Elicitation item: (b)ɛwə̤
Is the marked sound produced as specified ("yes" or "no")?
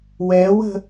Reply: no